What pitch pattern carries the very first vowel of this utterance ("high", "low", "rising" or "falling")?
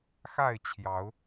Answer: falling